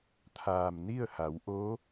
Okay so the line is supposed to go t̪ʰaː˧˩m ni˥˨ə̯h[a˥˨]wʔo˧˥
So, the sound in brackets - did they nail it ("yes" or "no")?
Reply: no